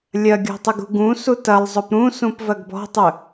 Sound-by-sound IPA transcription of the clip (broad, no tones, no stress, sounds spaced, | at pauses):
lʲ ɐ ɡʲ ɔ̤ tˤ ə ɡ ṳ ɡ ũ s u t ɐ lˠ zˤ ɵ p ɾ ũ s ũ p v ɐ ɡ b ɔ̤ tˤ ɵ